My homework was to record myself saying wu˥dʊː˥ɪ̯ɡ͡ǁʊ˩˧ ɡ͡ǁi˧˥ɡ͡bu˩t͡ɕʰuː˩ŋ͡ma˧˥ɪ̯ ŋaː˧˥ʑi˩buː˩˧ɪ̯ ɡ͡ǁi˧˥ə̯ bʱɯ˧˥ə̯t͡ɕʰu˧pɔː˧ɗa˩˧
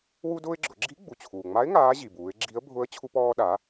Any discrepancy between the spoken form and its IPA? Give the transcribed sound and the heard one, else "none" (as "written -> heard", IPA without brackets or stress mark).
ɯ˧˥ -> ʊ˧˥